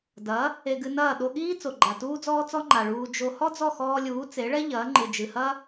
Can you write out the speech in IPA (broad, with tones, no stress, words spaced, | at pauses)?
dɐ˩˥ | e˧ɡɨ˧nɐː˥˩ ɗo˧ɠiː˥ t͡so˩ɡ͡ǃa˩tuː˥d͡zɔː˥ t͡sɔ˥ŋ͡ǃa˩ɭuː˧ d͡ʒo˧ hɔ˥d͡zɔ˥˩xɔː˧lʲuː˩˥ t͡se˩˥ɭɛ˥ ʎɐː˩˥ŋ͡ǃɨ˩d͡ʒɨ˩hɐ˥